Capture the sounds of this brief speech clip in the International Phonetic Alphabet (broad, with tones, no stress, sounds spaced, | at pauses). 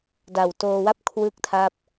d a˨˩ w t oː˧ w a˥˩ p̚ kʰ w ɯ˥˩ k̚ tʰ a˥˩ p̚